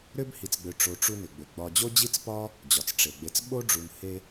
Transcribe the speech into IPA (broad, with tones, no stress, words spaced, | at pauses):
ɾʏ˥b hi˨t͡sɡ͡bʏ˨ʈ͡ʂo˨ ʈ͡ʂu˦nʏ˩ɡ͡bʏ˩ ɡ͡bɒ˨d͡ʑo˥d͡ʑi˥t͡spɒ˥ | d͡ʑɒ˩t͡sʈ͡ʂe˩ɡ͡be˨t͡s ɓo˥ɖ͡ʐu˨n he˦